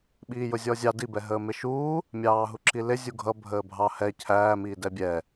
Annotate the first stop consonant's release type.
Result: implosive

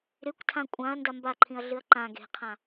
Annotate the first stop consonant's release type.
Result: plain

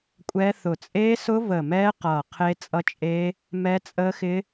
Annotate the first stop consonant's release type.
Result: ejective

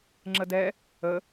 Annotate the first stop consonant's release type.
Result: click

